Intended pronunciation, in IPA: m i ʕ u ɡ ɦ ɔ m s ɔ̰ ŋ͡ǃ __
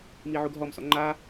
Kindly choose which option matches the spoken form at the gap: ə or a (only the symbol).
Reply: a